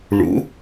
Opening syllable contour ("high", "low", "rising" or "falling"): rising